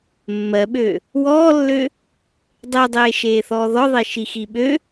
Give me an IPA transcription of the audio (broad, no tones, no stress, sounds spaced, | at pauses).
mː ɜ ɓ ø | w ɔː lː ø | dˤ e dˤ eː ʃ eː θ ɔː ð ɔ ðˤ e ʃ i x i ɓ ø